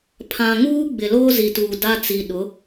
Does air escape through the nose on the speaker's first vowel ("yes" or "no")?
yes